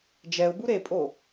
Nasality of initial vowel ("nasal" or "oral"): oral